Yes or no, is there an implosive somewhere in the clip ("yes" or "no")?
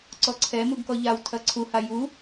no